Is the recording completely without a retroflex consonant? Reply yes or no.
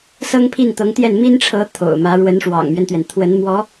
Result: no